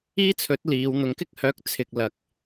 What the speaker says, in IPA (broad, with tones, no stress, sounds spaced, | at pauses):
iː˥ t͡sʰ ɵ˨˥ t̚ l iː˨˧ w n̪ ʊ˨˧ ŋ k ɪ˥ k̚ h œː˨˥ k̚ t͡sʰ ɪ˨ k̚ l ɐ˨ k̚